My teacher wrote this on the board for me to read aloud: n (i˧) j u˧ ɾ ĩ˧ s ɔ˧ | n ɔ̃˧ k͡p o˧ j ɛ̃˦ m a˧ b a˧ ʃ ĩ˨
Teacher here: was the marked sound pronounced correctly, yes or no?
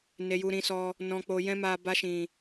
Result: no